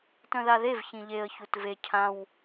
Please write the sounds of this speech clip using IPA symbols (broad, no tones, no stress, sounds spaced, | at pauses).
t œ̃ ð a ð e v ç ĩ ʎ e ə̯ ç u t v e cʰ ã w